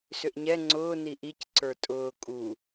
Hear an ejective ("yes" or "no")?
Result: yes